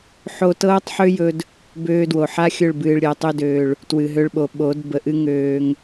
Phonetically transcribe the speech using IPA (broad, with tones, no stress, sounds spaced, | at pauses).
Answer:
ħ o˧ t ɤː˦ tˤ ħ ø˦ j ɵ˧ d | b øː˧ d w o˨ ħ a˦ xʲ ɵ˦˨ ɭ b ɨː˨ ɭ ɾʲ əː˨ tˤ ø˧ d øː˨ ɭ | t w ɨ˨ ɦ ø˧ ɭ ɓ o˨ ɓ o˨˦ d b ə˨ ʔ ɨ˦ ŋ øː˧ ŋ